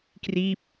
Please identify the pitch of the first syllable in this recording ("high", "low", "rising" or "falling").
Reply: falling